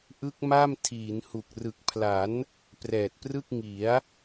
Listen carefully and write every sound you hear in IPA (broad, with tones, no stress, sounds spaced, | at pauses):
ʔ ɯ˦˥ k̚ m a˥˩ m tʰ iː˩˦ n h u˨˩ k̚ r ɯ˨˩ k̚ pʰ l a˩˦ n | p r ɛː˨˩ t̚ p r ɯ˥˩ k̚ ŋ i˩˦ a̯